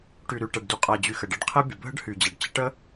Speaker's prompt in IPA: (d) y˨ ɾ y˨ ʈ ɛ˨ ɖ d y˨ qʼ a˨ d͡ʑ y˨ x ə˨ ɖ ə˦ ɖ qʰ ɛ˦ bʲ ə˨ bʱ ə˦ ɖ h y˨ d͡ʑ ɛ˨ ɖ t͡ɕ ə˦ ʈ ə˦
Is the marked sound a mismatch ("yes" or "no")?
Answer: yes